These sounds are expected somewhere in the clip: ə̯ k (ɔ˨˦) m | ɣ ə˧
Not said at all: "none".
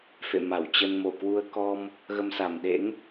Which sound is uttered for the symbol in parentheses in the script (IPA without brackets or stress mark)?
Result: ɔ˧